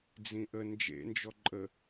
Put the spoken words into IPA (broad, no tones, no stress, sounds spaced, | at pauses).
d͡z ĩ ʔ ə n d͡ʒ ḛ n d͡ʒ ɔ ǃʼ ə